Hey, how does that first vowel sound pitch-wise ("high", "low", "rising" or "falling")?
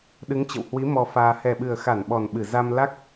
rising